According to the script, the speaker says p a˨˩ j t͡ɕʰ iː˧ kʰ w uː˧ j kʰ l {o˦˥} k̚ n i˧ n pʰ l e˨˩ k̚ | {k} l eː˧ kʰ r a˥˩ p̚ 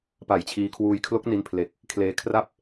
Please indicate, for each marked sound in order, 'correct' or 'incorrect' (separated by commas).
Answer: correct, incorrect